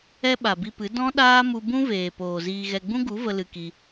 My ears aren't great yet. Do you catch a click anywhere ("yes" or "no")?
no